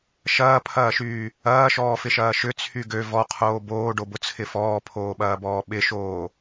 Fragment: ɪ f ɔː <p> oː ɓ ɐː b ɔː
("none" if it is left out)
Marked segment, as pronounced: pʰ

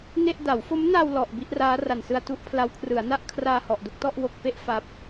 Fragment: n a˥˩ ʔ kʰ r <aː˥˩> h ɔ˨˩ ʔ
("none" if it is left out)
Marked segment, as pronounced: aː˧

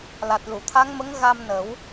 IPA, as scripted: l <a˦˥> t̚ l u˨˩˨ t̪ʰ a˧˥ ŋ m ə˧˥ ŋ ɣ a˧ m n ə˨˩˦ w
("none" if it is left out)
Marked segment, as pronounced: a˨˩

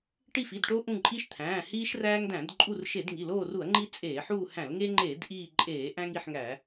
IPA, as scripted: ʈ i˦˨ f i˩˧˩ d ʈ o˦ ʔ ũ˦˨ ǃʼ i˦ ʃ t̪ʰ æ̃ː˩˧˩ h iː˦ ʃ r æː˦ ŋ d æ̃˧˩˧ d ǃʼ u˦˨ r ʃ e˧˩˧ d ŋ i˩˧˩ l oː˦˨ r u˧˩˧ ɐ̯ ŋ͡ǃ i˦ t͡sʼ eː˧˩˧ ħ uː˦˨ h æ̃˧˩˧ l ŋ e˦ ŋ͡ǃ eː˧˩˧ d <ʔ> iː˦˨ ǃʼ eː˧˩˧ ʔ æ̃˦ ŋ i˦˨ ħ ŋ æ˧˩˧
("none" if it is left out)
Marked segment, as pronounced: ʔ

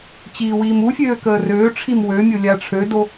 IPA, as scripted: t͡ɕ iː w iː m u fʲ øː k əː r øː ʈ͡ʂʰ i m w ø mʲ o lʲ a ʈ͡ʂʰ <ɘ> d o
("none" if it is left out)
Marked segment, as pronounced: ø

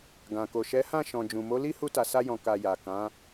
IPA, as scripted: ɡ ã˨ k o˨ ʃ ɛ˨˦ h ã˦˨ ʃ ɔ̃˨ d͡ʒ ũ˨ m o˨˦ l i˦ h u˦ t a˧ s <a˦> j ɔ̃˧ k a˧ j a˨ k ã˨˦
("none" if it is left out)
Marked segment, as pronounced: a˦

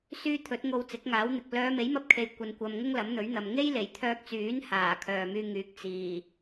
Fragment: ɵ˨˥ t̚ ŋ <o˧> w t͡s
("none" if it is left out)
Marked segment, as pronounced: o˧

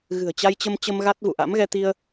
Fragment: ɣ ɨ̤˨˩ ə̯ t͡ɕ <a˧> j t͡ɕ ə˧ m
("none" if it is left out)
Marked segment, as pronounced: a˧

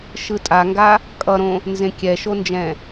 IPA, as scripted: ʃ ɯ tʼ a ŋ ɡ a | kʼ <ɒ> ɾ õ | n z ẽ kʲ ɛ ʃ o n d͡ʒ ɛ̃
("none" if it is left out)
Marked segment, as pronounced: ʌ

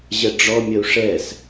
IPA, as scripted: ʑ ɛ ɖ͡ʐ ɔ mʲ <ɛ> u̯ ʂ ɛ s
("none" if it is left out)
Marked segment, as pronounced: ə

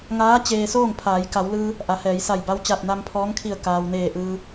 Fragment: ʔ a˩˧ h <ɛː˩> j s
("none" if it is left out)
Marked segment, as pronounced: ɛː˩˧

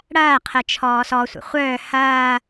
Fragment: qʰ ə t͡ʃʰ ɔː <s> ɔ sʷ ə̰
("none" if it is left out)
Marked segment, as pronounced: s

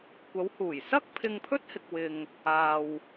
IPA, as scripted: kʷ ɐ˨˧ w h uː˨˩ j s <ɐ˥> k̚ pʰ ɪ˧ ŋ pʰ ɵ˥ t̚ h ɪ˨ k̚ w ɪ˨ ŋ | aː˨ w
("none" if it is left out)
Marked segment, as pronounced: ɐ˥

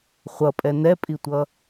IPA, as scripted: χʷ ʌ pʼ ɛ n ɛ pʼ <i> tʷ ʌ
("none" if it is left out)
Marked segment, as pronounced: i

